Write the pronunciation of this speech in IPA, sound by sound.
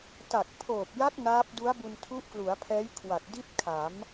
t a˨˩ k̚ pʰ oː˨˩ p̚ j a˦˥ k̚ n aː˦˥ p̚ d u˦˥ a̯ b u˧ n tʰ u˦˥ ʔ k l u˩˦ a̯ pʰ ɛː˦˥ j kʰ w a˨˩ t̚ d i˥˩ t̚ kʰ a˩˦ m

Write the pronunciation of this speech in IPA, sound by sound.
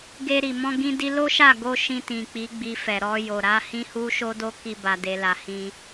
ɡ e˧ ɾ i˨ m ɔ̃˧ ɡ ĩ˧ d i˧ l o˦ ʃ a˦˨ ɡ o˧ ʃ ĩ˧ t ĩ˨ k͡p i˨˦ ɡ͡b i˧ f ɛ˨ ɾ ɔ˧ j o˨ ɾ a˨˦ h ĩ˦ h u˦ ʃ o˦ d o˦ k i˧ b a˧ d e˧ l a˧ h ĩ˧

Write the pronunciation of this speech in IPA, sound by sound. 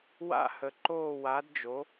w a̰˥˧ h ə˧ ǃ oː˥˧ w a˧˥ d d͡ʒ o˧˥

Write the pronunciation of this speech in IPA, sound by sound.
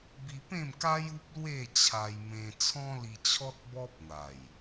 b i˧ p ẽ˥˧ m k a˦ j u˦ p̚ l w e˥˧ t͡ɕʰ a˧ j m ẽ˧ t͡sʰ ɔ̃˦ l i˧ t͡ɕʰ ɔ˦ t̚ b ɔ˦ p̚ n̪ a˨˩ j

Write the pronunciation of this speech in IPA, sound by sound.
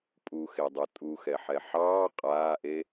pʼ u x e dˤ u tʼ u x ɛ ħ ɛ ħ ɑː qʼ aː ʔ e

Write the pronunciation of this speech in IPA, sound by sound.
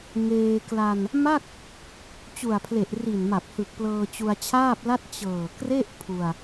ŋ eː˧ k l a˧ n | m a˥˩ k̚ | t͡ɕ u˨˩ a̯ pʰ l e˨˩ ʔ r i˨˩ n m a˨˩ p̚ h ɯ˨˩ k̚ p l ɤː˧ t͡ɕ u˧ a̯ t͡ɕʰ aː˥˩ p̚ l a˥˩ t̚ t͡ɕ ɤː˨˩ k r e˥˩ ʔ pʰ u˧ a̯

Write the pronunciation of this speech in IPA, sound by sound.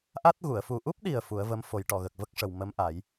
ʔ a˦˥ t̚ ɣ u˨˩˨ ə̯ f u˨˩ ʔ u˦˥ p̚ ɗ i˨˩ ə̯ f u˨˩˦ ə̯ v ə˧˥ m f o˨˩˦ j ʈ ɔ˨˩˨ ɣ ə˨˩ k̚ v ə˦˥ k̚ ʂ ə˨˩ w m ə˧˥ m ʔ a˨˩˦ j

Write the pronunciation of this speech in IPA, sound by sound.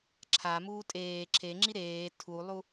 ǁʰ a m uː tʼ eː ǁʰ e ŋ͡ǁ i ɾ eː tʰ u lˠ u

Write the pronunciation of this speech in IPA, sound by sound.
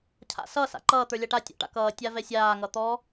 cʰ a̰ s ʌ s a̰ ǃ ʌː t̪ ə˞ lʲ a ʈ a tʲ ɔ̰ ʈ a̰ k ʌː tʲ a v ɛ sʲ aː ŋ ʌ t̪ ɔ

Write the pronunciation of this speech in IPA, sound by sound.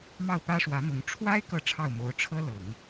m ɑ˥˩ ʊ̯ p ä˥ ʂ w ä˧˥ m ʊ˧˥ ŋ ʈ͡ʂʰ w a˥ ɪ̯ k ɤ˥˧ ʈ͡ʂʰ ɑ˥˩ ʊ̯ m o˧˥ ʊ̯ ʈ͡ʂʰ ɤ˥ l ɤ˨˩˦ ŋ

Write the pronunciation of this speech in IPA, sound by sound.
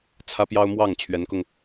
t͡sʰ ä˥ p j ɑ˥ ʊ̯ m w ɑ˥˩ ŋ t͡ɕʰ ɥ ɛ˧˥ n k ʊ˧ ŋ

